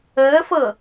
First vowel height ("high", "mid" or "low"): mid